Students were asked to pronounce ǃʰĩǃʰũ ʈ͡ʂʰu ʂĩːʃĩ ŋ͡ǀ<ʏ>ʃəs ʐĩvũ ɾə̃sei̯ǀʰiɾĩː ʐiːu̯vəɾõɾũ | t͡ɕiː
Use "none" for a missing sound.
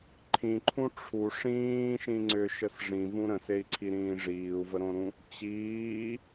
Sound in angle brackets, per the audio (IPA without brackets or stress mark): ʏ